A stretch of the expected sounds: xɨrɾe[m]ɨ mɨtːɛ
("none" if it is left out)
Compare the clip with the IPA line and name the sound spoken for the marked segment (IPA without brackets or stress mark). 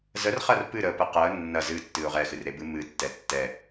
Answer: b